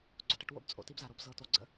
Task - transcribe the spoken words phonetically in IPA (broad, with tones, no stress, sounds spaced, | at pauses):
ɡ͡ǀ o̰˨ ʈ ə˧ ʈ w o̰˧ b t͡sʼ o̰˨ t i˦ b z a˨ ɾ o˦ b z ɤ˨ t o˨ ɡ͡ǀ ə̰˦